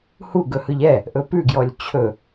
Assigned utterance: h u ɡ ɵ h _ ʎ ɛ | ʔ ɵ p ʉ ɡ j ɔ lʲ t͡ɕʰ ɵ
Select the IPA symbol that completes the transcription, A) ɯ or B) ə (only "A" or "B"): A